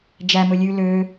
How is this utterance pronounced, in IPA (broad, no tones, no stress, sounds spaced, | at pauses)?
d͡ʒ æ m ɵ lʲ ʉ l ø